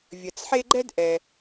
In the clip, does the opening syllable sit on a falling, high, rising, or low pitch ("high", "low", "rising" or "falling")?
low